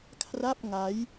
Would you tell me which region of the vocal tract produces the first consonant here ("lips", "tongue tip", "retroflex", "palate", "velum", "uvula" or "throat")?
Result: velum